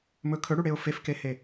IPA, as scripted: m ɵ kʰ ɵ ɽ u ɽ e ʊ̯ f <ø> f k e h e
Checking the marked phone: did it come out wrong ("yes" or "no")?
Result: yes